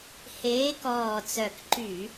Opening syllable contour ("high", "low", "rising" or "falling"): rising